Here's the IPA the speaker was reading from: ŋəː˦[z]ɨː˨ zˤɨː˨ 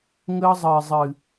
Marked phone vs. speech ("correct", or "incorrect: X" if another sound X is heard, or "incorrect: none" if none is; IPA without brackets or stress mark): incorrect: zˤ